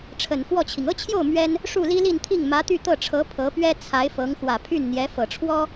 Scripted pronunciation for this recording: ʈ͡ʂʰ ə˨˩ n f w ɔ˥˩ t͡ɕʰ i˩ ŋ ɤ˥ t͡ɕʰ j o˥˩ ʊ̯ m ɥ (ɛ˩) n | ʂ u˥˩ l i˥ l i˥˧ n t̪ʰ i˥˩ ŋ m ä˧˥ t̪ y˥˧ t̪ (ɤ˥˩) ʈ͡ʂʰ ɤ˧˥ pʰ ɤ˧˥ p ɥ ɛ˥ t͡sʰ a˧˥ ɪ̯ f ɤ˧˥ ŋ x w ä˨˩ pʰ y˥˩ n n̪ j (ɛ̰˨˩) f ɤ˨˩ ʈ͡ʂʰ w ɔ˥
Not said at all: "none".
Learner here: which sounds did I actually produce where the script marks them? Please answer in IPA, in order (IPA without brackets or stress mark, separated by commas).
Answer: ɛ˥, ɤ˥˩, ɛ˧˥